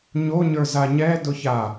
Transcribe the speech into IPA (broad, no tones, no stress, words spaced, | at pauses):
ɲo ɲə˞zaɲɛdʊ ça